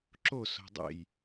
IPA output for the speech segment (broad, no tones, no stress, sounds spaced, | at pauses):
ǁ o s o̤ dˤ ḛ j